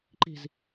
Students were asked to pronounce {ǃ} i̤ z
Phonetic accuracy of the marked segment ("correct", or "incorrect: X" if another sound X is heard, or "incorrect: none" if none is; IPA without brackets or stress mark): correct